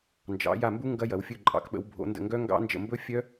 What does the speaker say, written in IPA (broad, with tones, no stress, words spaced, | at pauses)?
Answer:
nd͡ʒɑ̰˨˦ ja˦˨mbu˦˥ ŋɡɐ˦˥jɐ˨˦w fʲɵ˦˨ǃʼɑ̰˨˦kɓə̰˨˦w bʱo̰˨˦ndə̰˦˨ŋɡœ˦˥ ŋɡɑ̰˦˥nd͡ʒə̰˦˨ mbɵ˦˥fʲœ˦˥